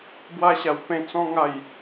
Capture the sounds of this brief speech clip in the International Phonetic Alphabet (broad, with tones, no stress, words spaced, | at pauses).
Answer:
bwa˧ɕa˨˩wpẽ˧ t͡sɔ̃˧ ŋa˨˩j